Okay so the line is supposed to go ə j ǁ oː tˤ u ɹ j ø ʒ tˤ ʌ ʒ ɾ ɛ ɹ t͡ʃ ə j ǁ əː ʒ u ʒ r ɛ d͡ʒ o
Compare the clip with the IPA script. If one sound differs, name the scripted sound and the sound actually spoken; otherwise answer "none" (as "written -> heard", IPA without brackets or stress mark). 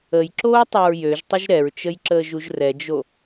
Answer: ʌ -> ə